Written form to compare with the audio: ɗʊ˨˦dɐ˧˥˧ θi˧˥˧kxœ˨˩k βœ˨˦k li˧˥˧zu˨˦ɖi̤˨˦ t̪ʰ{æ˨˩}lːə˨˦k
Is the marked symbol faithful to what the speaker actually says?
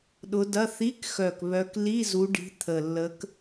no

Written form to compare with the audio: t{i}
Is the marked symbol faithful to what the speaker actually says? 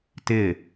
no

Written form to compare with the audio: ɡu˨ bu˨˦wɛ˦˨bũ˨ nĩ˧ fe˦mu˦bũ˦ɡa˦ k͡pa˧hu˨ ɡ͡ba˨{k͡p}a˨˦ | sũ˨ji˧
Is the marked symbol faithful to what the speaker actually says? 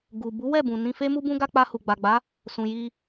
no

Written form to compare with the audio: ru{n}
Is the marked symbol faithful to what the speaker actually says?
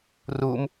no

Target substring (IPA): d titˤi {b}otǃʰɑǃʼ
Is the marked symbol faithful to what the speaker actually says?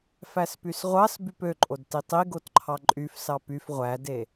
no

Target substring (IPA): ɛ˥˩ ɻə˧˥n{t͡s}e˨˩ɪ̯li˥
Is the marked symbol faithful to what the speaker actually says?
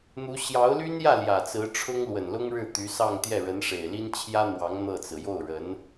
no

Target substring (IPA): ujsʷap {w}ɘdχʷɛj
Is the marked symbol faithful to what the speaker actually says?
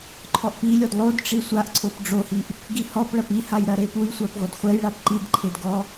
no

